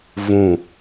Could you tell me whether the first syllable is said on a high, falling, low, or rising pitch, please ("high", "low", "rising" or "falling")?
falling